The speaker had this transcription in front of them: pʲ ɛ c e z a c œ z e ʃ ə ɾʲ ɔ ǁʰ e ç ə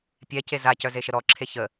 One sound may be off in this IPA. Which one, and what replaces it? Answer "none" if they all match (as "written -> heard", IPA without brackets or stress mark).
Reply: ɾʲ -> ɾ